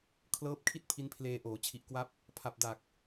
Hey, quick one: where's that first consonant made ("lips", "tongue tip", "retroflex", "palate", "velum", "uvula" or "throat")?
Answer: velum